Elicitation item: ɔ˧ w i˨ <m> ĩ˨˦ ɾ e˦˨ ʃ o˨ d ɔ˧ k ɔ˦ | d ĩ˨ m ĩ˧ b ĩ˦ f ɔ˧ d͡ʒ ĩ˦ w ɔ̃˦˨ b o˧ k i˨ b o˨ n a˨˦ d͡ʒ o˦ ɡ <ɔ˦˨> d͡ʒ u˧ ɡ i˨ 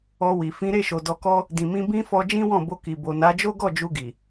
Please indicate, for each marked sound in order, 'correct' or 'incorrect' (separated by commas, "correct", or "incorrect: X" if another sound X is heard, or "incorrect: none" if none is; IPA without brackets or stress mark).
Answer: incorrect: f, correct